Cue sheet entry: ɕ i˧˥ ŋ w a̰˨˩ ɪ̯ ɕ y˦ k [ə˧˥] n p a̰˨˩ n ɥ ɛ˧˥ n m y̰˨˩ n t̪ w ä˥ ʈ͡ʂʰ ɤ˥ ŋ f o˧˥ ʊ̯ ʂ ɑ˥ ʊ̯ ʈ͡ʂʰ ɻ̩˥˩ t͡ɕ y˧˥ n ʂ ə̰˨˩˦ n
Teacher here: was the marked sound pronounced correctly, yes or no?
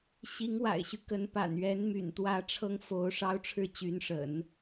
yes